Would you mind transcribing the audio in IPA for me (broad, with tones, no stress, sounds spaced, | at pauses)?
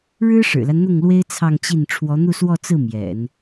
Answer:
ɻ ɻ̩˥ ʂ ɻ̩˨˩ l a˦ n n̪ ʊ˥˩ ŋ l w e˥ ɪ̯ t͡sʰ ɑ˥˧ ŋ t͡ɕ i˥˩ n ʈ͡ʂʰ w ɔ˧˥ n̪ u˥˧ s w ɔ˥˧ t͡s ɹ̩˥˩ m j ɛ̰˨˩˦ n